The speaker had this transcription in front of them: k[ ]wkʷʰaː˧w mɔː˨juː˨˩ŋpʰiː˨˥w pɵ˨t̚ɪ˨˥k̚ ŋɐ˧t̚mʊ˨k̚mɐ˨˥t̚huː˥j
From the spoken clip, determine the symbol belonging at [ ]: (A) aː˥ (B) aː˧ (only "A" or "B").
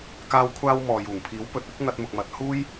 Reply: B